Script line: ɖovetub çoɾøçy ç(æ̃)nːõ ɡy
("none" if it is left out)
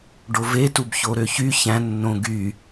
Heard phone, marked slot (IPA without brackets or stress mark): æ̃